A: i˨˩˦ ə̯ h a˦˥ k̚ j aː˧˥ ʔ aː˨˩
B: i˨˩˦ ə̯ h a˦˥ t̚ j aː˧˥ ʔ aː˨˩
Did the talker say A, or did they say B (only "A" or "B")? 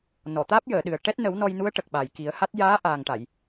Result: B